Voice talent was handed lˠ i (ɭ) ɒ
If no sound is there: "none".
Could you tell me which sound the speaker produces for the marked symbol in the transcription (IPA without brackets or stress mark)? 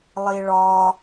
ɭ